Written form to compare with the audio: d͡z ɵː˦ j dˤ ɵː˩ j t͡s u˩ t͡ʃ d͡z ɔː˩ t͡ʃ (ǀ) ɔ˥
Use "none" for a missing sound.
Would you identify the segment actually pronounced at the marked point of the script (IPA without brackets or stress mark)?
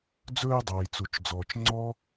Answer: ŋ͡ǀ